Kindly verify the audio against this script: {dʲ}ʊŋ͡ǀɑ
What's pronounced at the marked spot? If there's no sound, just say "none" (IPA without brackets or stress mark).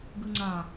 ɡ